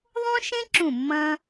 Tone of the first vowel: high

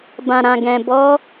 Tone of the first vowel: low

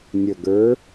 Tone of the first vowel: low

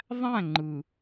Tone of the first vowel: falling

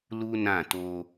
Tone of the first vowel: high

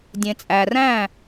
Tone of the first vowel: low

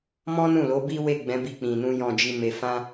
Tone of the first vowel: high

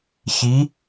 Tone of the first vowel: rising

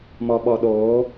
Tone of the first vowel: low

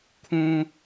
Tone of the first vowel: high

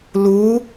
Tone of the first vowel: rising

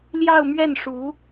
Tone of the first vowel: falling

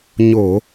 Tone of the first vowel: low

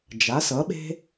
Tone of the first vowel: rising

